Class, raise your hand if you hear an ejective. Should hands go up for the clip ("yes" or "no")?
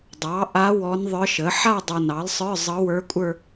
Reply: yes